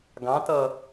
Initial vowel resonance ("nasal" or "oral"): nasal